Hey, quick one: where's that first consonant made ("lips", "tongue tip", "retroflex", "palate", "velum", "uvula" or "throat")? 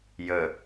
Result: palate